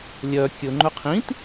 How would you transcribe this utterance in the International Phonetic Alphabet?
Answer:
lʲœ kʲɵ ŋ͡ǃɵqʰĩt

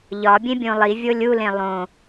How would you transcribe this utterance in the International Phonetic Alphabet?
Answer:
ʎɒbʲẽbʲõ lˠivʲo lʲulẽ lˠõ

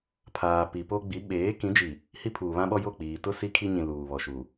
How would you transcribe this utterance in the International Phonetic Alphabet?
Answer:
pʰaː˨pi˨po˦ ɡ͡bi˨˦ɓeː˨˦kĩ˨˦ d͡ʒi˨ | hi˦pʰuː˨ βã˦ɓɔ˦ jo˦˨k͡piː˨ tʊ˦ si˦kʰi˦ɲĩ˨ luː˨ βɔ˨ʃuː˨

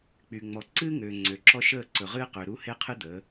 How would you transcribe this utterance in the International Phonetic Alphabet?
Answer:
k͡py˨ŋ͡mɔ˨ ǀɨː˦ŋøː˨ ŋ͡ǀø˨ǁɔ˦ʃəː˦˨ ǀɵ˨ʁɨː˦qø˨ ɾu˦he˦qʰɨ˦d̪əː˨˦

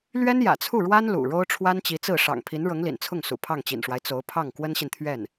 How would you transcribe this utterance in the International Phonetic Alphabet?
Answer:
lɥɛ˥njä̰˨˩t͡sʰu˥˩ɻwa˥n lṵ˨˩ɻo˥ʊ̯ ʈ͡ʂʰwa˥nt͡ɕi˧˥t͡sɹ̩˥˩ ʂɑ̰˨˩ŋpʰi˧˥n ɻɤ˧˥ŋlḭ˨˩n t͡sʰʊ˥˩ŋ sṵ˨˩pʰɑ˥˩ŋt͡ɕḭ˨˩nʂwa˦ɪ̯ t͡so˧˥ʊ̯pʰɑ˥˩ŋ kwə˥nɕi˨nt̪ʰɥɛ˥˩n

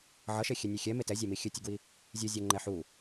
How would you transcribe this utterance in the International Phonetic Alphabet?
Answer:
ʕʌʃe xʲɛnʲexʲɛ metɛzʲæmi xʲɨtʲɨɡwi | zʲɨzʲo ŋ͡ǃɛħu

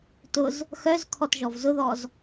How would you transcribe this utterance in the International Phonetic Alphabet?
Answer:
tʊz | xœzkʰɔt ʒɔvzʊðɔz

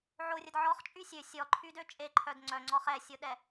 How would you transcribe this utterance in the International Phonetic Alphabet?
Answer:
ʕorʲəd ʕɔχt͡ʃʼy sʲø sʲɔǃʰydø t͡ʃʼeǃʰœd ŋ͡ǀœŋ͡ǀɔχ ɛsʲoɗɛ

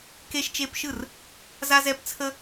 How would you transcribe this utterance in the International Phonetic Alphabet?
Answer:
ke˦ʃt͡ʃe˦pʃɯ˥˩r | za˦zɛ˦pt͡sʰə˦

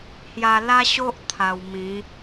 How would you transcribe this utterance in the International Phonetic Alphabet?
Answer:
hja˧la˦ɕo˦ʔ t̪ʰa˧w mĩ˨˦

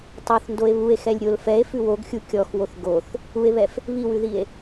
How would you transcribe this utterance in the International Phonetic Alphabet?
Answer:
tˤoθndoe̯ βue̯xɛlʲ ɾʲol fɛe̯fʉ woɡxʲu kʲɔxwoθ ɡoθ | ue̯βɛf | βiwʉðie̯

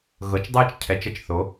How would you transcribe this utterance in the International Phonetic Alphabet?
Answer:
ɣɤ˩˧t͡ʃdˤɯː˧t͡ʃ cʰɛ˩˧t͡ʃə˨˩t͡ʃ θo˩˧

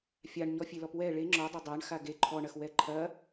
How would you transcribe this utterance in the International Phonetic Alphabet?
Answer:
fʲaɳ ɲɔfʲelɔpwɛ ɭe ŋ͡ǁɔdˤɐ dˤaɳxa ɡe ǃʰɔɳɐx wɛǃʰɐ

